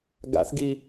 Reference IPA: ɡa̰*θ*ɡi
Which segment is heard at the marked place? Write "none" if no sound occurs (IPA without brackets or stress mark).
θ